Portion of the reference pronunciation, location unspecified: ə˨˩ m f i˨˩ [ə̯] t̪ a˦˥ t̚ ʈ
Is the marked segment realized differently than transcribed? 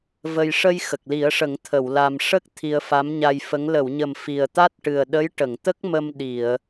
no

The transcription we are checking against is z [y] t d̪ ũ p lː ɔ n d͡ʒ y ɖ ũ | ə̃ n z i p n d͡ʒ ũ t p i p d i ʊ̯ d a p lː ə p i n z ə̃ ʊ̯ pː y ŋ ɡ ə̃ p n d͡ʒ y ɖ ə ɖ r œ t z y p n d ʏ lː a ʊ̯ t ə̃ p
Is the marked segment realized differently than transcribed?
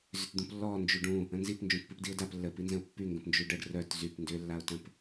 yes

